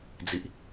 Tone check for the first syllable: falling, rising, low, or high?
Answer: low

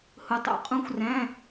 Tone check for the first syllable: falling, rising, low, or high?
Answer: low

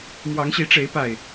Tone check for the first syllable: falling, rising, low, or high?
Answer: rising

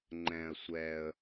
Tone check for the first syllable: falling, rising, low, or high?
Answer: low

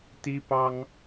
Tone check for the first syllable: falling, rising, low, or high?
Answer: high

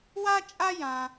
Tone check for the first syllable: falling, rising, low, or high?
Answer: high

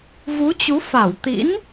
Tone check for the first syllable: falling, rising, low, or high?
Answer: rising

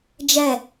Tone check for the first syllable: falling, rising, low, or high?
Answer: falling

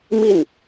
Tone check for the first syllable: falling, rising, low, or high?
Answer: falling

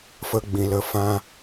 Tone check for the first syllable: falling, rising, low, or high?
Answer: high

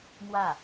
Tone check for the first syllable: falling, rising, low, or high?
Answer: falling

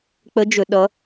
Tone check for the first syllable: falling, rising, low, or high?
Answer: rising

